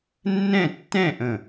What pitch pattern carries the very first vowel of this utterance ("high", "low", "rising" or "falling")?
falling